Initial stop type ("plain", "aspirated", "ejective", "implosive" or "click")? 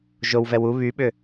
implosive